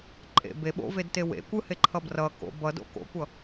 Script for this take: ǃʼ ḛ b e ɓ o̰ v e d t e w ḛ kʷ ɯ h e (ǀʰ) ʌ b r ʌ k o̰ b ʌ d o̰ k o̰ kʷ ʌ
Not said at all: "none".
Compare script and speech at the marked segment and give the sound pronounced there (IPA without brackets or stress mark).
ǃʰ